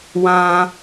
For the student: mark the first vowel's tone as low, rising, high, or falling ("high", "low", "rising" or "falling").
high